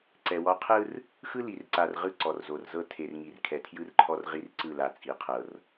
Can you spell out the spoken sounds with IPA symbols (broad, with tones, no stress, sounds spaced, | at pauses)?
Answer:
ǀ ɛ˨ w ɔ˦ qʰ ɯ˦ r | x ɯ˦ l i˨ r ǀ a˨ r ʁ ɯ˦ ǀ ɔ˨ r z o˨ r z ɤ˦ tʰ e˨ r ŋ i˨ r kʰ ɛ˨ tʰ j ɯ˦ r ǃʰ ɔ˦ r ʁ i˦ r ǀ ɯ˦˨ l a˨ t͡sʼ i˨ qʰ ɤ˨ r